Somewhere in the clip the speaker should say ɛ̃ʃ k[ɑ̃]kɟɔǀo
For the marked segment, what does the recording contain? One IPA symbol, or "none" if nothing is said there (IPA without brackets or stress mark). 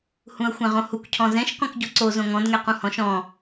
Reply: ɔ̃